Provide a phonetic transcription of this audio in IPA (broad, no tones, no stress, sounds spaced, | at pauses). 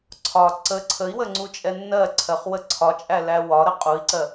ǀʰ ɒ ǀ ə ǀʰ ə i̯ w ə ŋ͡ǀ u t͡ʃʼ ɛ nː ɜ ǀʰ ɜ χ w ə ǀʰ ɒ t͡ʃʼ æ l æ w ɒ ɾ ə qʼ u i̯ ǀ ɜ